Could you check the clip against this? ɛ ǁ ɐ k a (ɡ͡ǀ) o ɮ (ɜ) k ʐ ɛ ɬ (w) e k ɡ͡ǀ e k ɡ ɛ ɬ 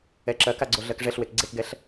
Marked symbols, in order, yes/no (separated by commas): yes, yes, yes